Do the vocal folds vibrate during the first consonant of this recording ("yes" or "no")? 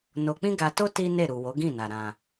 yes